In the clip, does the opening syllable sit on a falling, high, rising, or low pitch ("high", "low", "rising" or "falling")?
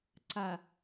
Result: low